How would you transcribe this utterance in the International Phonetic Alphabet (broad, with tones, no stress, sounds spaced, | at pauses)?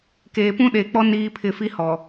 k eː˨ p ũ˦ ɗ e˨ k͡p ɔ˦ n iː˦ pʰ ɪ˦˨ f i˦ h ɔ˨